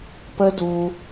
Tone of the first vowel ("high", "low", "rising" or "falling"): high